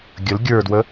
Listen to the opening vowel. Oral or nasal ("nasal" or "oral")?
oral